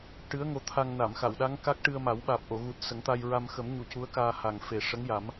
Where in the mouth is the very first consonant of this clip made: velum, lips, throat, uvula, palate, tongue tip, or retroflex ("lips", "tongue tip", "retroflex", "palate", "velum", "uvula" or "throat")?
retroflex